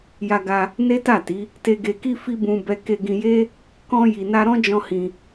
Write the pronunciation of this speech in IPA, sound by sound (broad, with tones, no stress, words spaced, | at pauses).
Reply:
ja˧ɡa˧ | ne˦ta˦˨ti˨˦ | te˨ɡe˨ki˧ fi˦bũ˧ bɛ˧ke˧ɡĩ˧je˦ | kɔ̃˧ ji˨na˧ ɾɔ̃˦d͡ʒɔ̃˧ hĩ˧